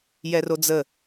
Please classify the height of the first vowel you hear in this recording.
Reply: mid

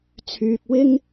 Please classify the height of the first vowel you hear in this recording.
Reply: high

